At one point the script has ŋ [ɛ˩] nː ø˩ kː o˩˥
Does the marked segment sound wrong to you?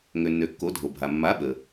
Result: yes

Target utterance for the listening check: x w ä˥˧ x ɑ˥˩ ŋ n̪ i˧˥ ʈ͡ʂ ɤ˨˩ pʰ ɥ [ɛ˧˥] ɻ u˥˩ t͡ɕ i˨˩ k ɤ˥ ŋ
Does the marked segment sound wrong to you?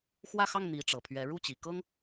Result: no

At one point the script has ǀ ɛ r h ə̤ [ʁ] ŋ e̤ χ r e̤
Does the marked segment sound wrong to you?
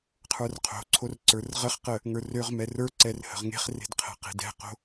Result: no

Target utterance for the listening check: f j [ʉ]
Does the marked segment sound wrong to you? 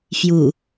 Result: yes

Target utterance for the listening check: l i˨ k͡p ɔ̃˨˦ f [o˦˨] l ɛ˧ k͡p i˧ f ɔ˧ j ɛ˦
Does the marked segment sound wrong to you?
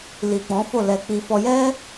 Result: no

